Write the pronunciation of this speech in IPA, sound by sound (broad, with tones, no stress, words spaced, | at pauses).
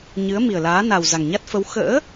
ɲɨ˨˦ə̯mi˨˩ə̯laː˨˦ na˨˩wza˨˩ŋ ɲa˦˥t̚ fə˨˦w xə̰ː˧˥